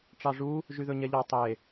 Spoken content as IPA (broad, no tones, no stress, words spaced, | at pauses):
ʈ͡ʂɑʐu | ʒyðɵɲɛʎɑ tˤe